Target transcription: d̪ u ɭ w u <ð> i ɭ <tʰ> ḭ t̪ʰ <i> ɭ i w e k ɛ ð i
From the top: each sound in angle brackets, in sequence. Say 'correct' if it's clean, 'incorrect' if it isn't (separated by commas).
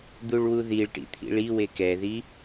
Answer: correct, incorrect, incorrect